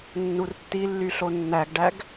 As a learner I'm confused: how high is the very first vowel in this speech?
high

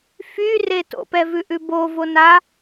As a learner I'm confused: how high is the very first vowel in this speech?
high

